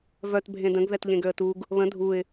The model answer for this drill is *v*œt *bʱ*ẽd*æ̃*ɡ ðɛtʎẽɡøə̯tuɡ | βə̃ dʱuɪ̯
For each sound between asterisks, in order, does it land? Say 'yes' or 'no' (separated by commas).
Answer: yes, yes, no